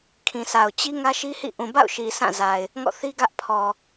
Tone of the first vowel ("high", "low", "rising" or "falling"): low